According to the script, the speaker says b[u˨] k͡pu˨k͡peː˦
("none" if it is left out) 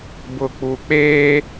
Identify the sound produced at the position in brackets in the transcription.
ʊ˨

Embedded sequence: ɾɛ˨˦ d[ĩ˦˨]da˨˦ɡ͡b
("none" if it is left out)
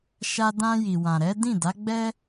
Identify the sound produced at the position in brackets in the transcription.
ĩ˦˨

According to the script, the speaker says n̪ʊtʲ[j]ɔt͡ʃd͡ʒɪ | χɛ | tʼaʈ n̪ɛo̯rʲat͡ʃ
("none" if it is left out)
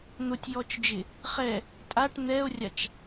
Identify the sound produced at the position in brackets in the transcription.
j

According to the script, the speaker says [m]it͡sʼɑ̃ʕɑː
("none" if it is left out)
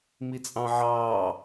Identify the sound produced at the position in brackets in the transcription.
m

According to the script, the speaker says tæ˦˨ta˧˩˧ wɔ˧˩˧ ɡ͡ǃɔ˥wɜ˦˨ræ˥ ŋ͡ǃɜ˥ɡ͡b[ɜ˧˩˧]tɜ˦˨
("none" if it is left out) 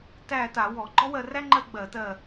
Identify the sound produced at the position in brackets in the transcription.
ɜ˧˩˧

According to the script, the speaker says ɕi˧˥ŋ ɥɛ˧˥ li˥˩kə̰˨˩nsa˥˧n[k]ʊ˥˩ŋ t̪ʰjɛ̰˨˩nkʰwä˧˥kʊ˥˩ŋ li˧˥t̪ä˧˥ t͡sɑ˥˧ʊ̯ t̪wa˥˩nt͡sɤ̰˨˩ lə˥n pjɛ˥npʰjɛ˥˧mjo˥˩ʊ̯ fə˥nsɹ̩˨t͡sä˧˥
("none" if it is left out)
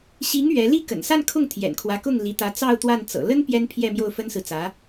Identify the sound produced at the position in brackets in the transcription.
kʰ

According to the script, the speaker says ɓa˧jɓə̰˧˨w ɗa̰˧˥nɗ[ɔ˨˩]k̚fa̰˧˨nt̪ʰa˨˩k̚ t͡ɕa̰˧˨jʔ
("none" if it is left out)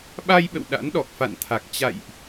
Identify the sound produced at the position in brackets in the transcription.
ɔ˨˩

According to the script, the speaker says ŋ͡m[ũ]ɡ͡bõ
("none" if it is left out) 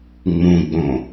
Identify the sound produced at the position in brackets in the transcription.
ũ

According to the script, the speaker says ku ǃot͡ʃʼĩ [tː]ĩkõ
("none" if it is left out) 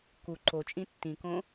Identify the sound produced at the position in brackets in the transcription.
tː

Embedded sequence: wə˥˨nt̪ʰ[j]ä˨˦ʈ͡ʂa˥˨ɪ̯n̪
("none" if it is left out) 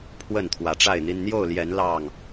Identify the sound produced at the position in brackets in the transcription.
w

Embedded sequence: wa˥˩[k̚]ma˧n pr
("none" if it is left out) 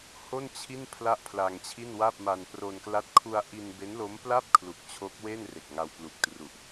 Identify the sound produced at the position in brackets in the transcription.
p̚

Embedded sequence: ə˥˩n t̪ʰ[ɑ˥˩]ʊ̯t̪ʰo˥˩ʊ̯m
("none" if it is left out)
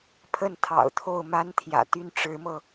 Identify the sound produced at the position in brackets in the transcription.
ɑ̰˨˩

